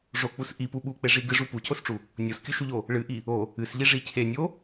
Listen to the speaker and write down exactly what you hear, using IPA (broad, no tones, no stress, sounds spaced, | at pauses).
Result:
ʐ o k͡p u s ʔ i p u ɓ u k͡p e ʐ i ɡ ɨ ʐ u p u cʰ o s ʈ͡ʂ u | nʲ o s kʲ u ʃ u ʎ o | ɭ ɨ ʔ i | o | ɨ s ʎ i ʐ i cʰ e nʲ o